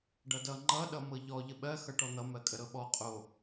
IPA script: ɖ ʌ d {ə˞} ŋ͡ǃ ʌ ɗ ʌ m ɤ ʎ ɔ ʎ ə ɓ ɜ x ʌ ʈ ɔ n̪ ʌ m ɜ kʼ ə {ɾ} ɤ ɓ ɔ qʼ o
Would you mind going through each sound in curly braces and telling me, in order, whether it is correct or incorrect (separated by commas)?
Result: incorrect, correct